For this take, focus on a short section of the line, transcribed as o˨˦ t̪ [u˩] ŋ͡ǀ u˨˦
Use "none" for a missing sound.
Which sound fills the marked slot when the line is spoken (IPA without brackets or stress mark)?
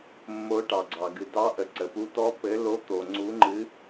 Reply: o˩